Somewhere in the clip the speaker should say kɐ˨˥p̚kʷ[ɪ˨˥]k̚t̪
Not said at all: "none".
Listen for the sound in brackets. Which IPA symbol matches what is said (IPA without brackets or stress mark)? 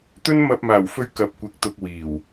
ɪ˨˥